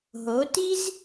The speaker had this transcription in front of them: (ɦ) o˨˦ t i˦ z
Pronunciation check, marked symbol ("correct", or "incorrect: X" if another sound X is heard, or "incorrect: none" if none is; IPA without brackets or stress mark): correct